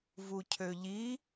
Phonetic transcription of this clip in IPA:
vucʰøʎi

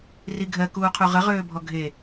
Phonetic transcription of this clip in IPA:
riɡʱɜ kuːqʰuʁə ʁøːbʱɔɡʱe

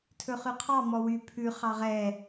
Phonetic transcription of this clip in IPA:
tʰɵχʉqʰɑ mɔwy pʰʉ χɑʁɛ

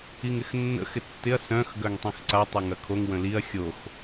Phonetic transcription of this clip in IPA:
iŋɪxnːə̰ xɪtːɪɐ̯ sœ̃x ɡœŋtˤĩxǀa tˤɛŋɐkʰoŋ wə̃liɐ̯ xʲox

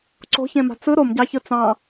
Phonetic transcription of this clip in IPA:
ǀo̤çẽma̤ t͡sɯ ɾomɟɑçɯ t͡sɑ̃

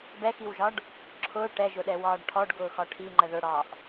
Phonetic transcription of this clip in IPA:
bɛxiwʒɒɖ | ǁʰʊː ʈɛʒʊɗɛwɒːɖ ʈʰɔɖɡʊːxɒ ʈʰiŋ͡ǃə ðʊɽɒːʔ

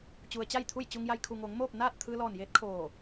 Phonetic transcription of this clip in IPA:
t͡ɕu˩ə̯t͡ɕa˥˨jt̪ʰu˥˨jt͡ɕu˧ŋ ja˧jkʰu˩ŋoː˩˧ŋ moː˥˨p̚ naː˥˨t̚ t̪ʰɯː˧lɔː˧˩njeː˧˥t̚ kʰoː˧˩

